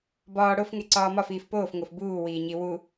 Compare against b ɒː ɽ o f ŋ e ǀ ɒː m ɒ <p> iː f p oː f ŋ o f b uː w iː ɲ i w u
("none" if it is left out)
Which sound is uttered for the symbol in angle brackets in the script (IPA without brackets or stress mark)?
f